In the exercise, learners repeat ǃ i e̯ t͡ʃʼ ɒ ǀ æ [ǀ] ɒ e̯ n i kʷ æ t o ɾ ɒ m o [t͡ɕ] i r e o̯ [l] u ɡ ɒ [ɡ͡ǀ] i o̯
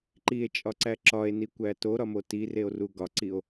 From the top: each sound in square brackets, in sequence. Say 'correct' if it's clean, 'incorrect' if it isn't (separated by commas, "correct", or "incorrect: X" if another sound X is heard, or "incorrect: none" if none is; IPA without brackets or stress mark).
incorrect: ǁ, incorrect: t, incorrect: r, incorrect: ǀ